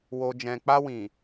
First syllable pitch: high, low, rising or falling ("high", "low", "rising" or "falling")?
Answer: low